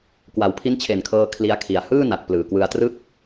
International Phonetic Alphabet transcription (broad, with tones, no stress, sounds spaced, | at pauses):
k w a˩˦ w pʰ i˦˥ n t͡ɕʰ e˨˩ n kʰ ɤː˧ kʰ l i˦˥ a̯ kʰ i˨˩ a̯ h ɯː˥˩ n a˨˩ t̚ p l ɯː˨˩ k w ɯ˧ a̯ t r ɯ˥˩ k̚